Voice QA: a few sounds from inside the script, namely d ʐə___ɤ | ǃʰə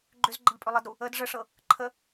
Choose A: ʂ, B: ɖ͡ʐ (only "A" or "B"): A